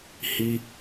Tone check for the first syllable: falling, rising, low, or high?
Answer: high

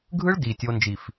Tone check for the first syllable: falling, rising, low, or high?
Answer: high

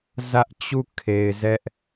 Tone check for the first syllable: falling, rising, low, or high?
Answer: high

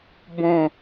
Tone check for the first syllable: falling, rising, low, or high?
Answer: falling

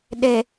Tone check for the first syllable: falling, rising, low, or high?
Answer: low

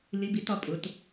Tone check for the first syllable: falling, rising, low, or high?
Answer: rising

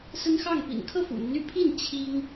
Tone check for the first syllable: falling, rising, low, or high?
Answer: high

